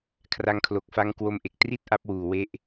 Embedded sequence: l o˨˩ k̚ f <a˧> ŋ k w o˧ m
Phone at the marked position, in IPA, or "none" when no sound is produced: a˧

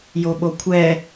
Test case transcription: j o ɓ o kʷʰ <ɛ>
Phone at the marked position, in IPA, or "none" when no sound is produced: ɛ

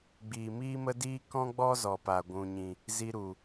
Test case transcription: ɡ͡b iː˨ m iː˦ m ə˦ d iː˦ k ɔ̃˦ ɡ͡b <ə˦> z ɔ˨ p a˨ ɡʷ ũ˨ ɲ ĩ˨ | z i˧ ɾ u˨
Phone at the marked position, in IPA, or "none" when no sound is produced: ɔ˦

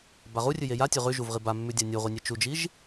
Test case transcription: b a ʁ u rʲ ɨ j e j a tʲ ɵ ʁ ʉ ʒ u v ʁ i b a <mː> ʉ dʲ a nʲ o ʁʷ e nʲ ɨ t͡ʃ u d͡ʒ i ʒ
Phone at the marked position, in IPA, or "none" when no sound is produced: mː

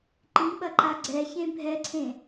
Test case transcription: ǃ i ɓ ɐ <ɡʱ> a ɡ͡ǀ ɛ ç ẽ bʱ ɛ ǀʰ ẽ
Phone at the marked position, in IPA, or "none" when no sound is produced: ǃ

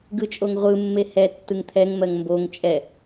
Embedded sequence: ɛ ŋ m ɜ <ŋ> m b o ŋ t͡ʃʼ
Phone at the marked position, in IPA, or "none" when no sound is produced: ŋ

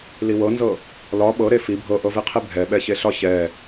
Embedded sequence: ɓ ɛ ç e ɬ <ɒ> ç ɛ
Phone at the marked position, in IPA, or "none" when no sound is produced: ɒ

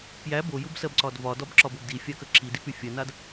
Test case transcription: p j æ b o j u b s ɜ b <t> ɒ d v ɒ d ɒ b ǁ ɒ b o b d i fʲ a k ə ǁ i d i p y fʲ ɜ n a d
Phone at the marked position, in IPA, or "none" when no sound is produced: ǀ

